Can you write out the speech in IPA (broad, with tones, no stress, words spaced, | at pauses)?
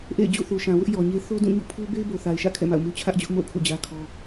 ʔḛ˦˨ɪ̯ d͡ʑṵ˦˨θu˨ʃã˨wʊ˦ʔ jɔ˨ɲe˦ θo˦dũ˦˨ɲṵ˦˨pʰu˦ be˦ɪ̯bo˨θa˨ɪ̯ʃä̰˦˨ kʰɛ̰˦˨ma̰˦˨ʊ̯mu˦ t͡ɕʰä˦ʔd͡ʑʊ˦ʔmo̰˦˨ʊ̯ kʰṵ˦˨d͡ʑä˦kʰɔ˦